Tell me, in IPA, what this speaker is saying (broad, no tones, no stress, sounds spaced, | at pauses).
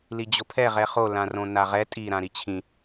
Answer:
l i d͡ʑ o pʰ ɛ ʁ ɛ χ o l ã r õ n a ʁ ɛ tʼ i ɾ ã ɾ i t͡ɕʰ ĩ